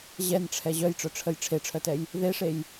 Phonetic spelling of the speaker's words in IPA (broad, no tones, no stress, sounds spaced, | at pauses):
ʑ ɛ n ʈ͡ʂʰ ɛ ʑ œ j ʈ͡ʂ œ ʈ͡ʂʰ ə j ʈ͡ʂʰ e ʈ͡ʂʰ œ t ɛ j | ð e ʂ e j